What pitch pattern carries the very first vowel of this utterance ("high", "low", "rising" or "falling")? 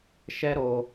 high